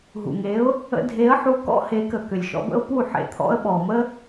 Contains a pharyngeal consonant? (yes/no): yes